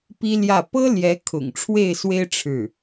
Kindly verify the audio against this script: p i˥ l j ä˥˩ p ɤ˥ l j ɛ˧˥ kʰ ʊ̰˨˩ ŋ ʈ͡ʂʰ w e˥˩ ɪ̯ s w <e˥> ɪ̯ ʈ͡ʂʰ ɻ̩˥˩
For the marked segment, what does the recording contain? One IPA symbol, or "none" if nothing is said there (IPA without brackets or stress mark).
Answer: e˥